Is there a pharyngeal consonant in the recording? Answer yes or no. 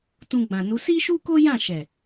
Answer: no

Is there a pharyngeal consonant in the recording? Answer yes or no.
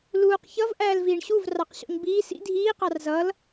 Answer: no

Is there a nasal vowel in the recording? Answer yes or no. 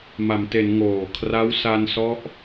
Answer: no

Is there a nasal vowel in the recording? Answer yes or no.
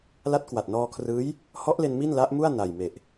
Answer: no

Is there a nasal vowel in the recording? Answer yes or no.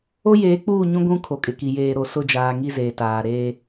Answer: yes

